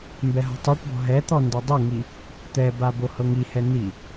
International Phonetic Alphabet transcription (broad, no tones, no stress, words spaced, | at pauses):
mbɛɦɔ̤tˤoʈbɔ̤ ɦɛt̪ɔ ndɤdˤɤŋi | t̪ɛba bohɤŋihɛ ni